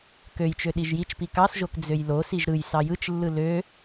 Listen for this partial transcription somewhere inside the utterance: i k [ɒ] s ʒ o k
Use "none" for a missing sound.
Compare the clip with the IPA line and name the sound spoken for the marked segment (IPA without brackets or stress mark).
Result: ɑ